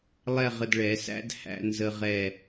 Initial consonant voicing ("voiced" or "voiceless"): voiced